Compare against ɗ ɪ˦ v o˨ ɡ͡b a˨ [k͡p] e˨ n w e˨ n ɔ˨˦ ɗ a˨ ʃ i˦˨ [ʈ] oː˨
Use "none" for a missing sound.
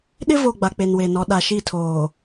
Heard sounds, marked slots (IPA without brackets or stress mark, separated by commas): k͡p, tʰ